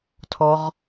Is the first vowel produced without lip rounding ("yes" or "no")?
no